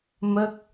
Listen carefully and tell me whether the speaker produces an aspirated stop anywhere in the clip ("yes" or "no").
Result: no